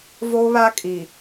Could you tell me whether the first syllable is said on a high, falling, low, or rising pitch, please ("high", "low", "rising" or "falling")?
high